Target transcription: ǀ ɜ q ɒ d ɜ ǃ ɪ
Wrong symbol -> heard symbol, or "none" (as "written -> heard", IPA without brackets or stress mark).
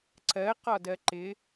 none